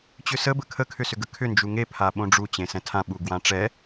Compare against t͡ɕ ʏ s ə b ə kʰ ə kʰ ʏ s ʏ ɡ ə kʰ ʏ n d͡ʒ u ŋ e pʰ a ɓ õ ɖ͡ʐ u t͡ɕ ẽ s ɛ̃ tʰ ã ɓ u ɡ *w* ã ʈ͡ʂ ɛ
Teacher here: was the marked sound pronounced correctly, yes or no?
yes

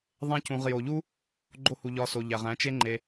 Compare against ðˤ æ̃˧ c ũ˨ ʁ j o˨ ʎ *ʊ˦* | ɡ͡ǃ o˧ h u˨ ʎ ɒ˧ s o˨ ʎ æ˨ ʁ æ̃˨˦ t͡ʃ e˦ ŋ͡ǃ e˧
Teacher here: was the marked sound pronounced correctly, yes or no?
no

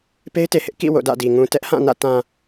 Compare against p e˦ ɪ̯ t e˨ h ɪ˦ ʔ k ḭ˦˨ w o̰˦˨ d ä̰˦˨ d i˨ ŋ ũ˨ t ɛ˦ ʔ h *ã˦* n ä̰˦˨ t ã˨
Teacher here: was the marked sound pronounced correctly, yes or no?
no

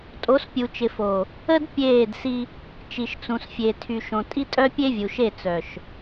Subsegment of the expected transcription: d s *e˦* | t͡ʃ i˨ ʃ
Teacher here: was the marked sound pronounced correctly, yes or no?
no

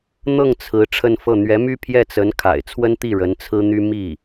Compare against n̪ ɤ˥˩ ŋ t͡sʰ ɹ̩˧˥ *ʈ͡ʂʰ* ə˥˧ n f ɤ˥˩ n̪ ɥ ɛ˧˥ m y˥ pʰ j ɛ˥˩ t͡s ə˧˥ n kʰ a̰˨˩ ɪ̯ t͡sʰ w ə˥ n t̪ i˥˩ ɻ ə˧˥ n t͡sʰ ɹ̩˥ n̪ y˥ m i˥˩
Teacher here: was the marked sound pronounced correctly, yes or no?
yes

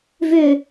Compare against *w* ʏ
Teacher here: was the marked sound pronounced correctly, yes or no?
no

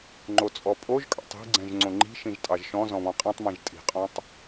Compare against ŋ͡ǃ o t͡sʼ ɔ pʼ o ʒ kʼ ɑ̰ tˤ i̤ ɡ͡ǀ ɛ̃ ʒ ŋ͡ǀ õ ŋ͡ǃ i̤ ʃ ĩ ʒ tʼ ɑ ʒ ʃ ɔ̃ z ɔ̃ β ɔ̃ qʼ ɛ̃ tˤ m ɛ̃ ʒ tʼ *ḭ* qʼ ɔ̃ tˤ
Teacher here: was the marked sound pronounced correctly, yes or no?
no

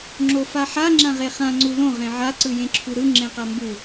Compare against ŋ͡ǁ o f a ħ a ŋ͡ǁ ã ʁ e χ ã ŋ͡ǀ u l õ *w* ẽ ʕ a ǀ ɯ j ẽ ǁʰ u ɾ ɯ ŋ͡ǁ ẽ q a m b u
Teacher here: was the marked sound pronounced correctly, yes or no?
no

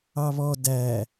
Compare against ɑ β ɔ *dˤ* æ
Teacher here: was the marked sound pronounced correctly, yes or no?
no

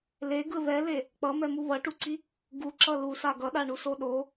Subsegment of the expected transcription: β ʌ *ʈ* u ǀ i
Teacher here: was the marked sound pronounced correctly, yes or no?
yes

